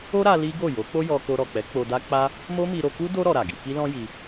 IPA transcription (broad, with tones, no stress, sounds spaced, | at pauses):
o˦ ɾ a˧ l i˦ ɡ o˦˨ j o˨˦ k͡p o˦ j ɔ˧ k o˧ ɾ ɔ˨ k͡p ɛ˨˦ k͡p o˧ d a˦ k͡p a˦ | m o˦ m i˧ ɾ o˧ k u˦ d o˦ ɾ ɔ˧ ɾ a˨ ɡ i˨˦ k i˦ l ɔ̃˦ j i˧